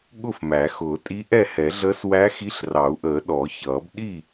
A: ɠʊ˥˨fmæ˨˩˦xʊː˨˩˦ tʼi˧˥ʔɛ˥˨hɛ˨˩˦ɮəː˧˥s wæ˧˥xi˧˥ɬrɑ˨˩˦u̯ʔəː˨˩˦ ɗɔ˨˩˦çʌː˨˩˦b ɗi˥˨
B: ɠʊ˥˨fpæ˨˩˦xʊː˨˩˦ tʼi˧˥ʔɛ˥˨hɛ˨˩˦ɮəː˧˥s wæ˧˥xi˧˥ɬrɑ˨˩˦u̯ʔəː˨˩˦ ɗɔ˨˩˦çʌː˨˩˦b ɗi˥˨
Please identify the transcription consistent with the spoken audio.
A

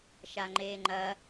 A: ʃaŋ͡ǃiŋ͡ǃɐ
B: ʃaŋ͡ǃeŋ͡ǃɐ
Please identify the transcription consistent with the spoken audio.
B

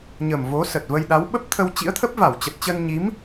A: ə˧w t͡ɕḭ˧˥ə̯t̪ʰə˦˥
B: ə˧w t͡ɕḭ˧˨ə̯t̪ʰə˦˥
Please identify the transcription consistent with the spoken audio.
A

